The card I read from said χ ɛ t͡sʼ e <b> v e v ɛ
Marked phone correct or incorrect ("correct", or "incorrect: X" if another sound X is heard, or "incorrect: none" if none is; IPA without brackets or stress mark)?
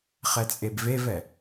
correct